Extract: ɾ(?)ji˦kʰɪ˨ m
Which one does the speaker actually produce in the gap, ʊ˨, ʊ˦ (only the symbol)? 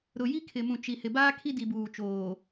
ʊ˨